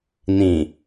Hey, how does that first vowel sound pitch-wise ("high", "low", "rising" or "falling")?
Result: low